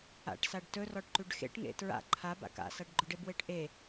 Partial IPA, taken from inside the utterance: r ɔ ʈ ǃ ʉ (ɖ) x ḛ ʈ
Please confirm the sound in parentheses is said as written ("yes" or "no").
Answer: yes